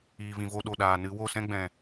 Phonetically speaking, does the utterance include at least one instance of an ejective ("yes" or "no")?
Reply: no